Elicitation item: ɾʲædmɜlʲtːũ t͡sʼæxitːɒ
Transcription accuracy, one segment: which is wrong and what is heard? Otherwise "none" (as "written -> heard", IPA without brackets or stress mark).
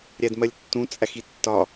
none